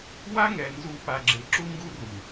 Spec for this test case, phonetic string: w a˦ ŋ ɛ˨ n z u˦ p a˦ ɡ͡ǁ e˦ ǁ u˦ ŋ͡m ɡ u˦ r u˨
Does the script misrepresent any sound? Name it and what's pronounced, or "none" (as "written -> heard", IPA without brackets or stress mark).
ŋ͡m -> ŋ